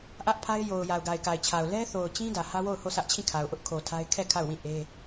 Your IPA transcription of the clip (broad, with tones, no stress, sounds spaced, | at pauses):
ʔ ä˦ ʔ pʰ a˦ ɪ̯ j o˨ ʊ̯ j a˨ ʊ̯ ɡ a˨ ɪ̯ k a˨ ɪ̯ t͡ɕʰ a˨ ʊ̯ l ɛ˦ θ o˨ ʊ̯ t͡ɕ ĩ˦ d ä˨ h ä˦ w o˦˨ ʊ̯ h o˦˨ sʰ ä˦ ʔ t͡ɕʰ ĩ˦˨ kʰ a˨ ʊ̯ ʔ ʊ˦ ʔ kʰ o˨ tʰ a˦ ɪ̯ kʰ ɛ˦˨ kʰ a˦˨ ʊ̯ w ĩ˦˨ ʔ e˦